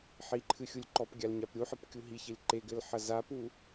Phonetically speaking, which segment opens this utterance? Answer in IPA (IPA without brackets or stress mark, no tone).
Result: ħ